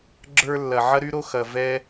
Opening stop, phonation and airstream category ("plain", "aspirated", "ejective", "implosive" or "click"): click